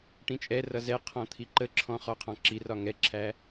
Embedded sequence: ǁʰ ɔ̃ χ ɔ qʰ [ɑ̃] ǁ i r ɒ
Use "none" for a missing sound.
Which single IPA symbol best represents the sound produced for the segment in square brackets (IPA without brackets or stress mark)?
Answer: ɑ̃